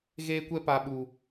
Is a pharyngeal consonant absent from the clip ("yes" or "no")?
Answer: yes